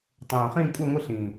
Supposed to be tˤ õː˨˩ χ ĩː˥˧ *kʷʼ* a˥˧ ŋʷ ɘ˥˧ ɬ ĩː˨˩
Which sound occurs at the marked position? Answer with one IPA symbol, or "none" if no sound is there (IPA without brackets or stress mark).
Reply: kʷʼ